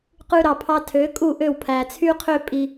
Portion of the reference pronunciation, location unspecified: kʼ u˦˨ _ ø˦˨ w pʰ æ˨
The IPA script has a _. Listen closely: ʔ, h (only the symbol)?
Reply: ʔ